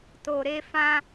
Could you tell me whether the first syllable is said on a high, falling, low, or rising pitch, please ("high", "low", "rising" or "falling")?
low